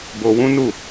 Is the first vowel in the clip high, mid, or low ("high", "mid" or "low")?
mid